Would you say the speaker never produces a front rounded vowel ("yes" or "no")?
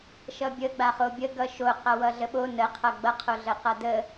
yes